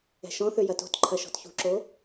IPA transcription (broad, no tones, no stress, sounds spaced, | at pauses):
ɛ̤ ʃ ɔ̃ θ ø j ɐ t o̤ t ǃʰ ɐ ʃ ɔ̤ t ç ṳ ǁ o